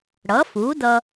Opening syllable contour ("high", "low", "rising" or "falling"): rising